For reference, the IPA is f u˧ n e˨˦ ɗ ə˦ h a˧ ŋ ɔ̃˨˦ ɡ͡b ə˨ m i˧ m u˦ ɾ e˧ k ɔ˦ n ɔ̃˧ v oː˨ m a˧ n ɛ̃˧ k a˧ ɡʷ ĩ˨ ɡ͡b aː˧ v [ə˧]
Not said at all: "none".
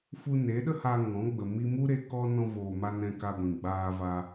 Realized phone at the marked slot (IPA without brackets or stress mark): a˧